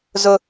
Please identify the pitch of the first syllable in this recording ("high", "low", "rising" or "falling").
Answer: high